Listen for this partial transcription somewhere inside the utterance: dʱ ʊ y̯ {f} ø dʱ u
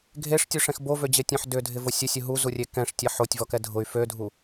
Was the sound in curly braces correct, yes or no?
yes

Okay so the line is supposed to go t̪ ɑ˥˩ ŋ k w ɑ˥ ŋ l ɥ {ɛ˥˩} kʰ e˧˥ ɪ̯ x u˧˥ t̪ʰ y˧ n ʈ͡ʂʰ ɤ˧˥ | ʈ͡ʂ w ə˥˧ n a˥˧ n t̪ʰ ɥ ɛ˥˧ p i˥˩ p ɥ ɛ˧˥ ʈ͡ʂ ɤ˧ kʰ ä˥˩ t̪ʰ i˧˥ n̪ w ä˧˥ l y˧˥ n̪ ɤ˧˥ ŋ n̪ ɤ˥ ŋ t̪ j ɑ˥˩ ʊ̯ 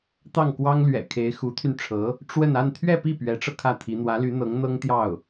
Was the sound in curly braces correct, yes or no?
no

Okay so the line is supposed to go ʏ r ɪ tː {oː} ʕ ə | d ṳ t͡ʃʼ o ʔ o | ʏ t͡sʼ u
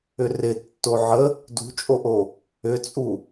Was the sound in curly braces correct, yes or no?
no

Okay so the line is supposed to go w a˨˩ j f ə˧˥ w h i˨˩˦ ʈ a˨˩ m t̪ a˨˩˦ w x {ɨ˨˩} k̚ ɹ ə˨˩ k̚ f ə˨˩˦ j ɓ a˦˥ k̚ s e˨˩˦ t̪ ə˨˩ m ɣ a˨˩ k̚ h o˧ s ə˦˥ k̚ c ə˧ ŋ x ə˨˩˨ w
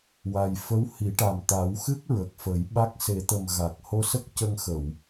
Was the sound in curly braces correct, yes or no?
no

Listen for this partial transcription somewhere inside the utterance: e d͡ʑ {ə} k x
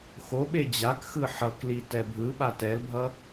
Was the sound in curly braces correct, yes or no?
no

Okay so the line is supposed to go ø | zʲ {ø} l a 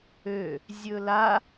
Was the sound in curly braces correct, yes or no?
no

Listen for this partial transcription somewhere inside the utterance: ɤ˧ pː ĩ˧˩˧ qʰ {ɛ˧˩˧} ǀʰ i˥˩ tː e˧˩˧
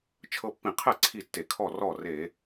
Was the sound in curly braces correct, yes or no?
no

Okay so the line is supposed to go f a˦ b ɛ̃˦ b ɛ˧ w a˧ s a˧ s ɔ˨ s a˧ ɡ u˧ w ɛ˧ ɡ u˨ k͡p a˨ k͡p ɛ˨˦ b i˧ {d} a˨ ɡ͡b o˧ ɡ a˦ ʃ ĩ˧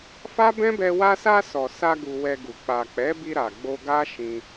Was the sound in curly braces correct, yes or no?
no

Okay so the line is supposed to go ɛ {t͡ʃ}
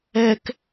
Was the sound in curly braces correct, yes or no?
no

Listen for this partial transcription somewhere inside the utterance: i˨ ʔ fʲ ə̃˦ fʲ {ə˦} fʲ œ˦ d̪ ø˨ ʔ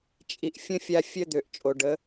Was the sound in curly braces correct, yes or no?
no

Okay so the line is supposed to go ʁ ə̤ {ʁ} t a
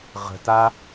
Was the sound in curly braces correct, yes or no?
no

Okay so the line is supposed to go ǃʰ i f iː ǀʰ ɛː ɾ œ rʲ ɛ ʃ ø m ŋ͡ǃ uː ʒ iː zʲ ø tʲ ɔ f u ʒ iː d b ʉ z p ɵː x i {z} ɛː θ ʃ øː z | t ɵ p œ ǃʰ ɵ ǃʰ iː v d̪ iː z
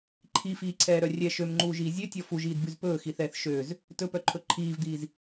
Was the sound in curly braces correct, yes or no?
no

